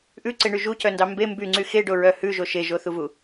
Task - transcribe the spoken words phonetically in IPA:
ʔ ʉ ǀ e ɳ y ʒ u c œ n d ɑ m b e m b y ŋ͡ǀ y x e ɖ o ɹ œ h ʉ ʒ o ʃ e ʒ o θ u v u

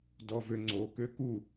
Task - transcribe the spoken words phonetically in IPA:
d ɔ v ø ŋ͡ǀ o k ø k u

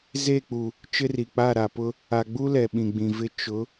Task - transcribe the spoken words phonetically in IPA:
z e˦˨ k͡p u˨ | t͡ʃ ɪ˦ r i˨ k͡p a˦˨ ɾ a˨ p ʊ˦ | a˨ ɡ͡b u˦ l ɛ˨ ɓ ĩ˨ ɡ͡b ĩ˨ v ɪ˦ t͡ʃ ʊ˨˦

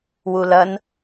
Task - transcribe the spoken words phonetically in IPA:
w u l ɐ n

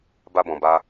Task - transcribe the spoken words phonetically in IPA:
b a˦ b ɔ̃˧ b a˦

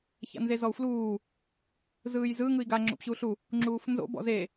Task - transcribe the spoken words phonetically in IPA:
ç a̰ n z e z ɔ u̯ f l uː | z ɯː j z ɯ ŋ ɯ i̯ ɡ a ŋ͡ǁ o̰ p ɕ u ɬ u | ŋ͡ǁ uː f n z o̰ b ɔ̰ z e

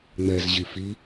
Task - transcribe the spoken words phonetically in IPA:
ŋ͡m ɛ z ʑ i f i

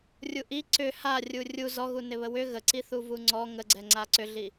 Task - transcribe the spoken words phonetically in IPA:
rʲ u ʔ i ǀ ʏ h a rʲ u rʲ u z ɔ ɣ u n ɪ β ə w ʏ ɣ ə ǀ i θ u v u ŋ͡ǀ ɔ ŋ ə ɡ͡ǀ ɛ ŋ͡ǀ a ǀ ʏ ɮ i

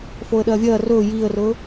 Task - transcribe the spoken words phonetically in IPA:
f o ə̯ ɗ ɐː vʲ ɐː r ɵː j iː ə̯ r ɵː

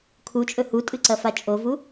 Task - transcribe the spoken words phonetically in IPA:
kʰ u t͡ʃʼ ɵ h u tʼ ɨ ǀ ɐ f a t͡ʃʼ o v u

